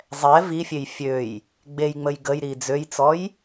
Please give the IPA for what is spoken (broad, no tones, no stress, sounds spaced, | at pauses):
zˤ ɛ v i fʲ e j fʲ ø j | ɡ͡b e j ŋ͡m ə j ɡ ə j ɾ i d͡z ø j t͡s ɔ j